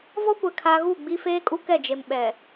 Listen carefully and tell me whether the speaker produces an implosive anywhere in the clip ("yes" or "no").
yes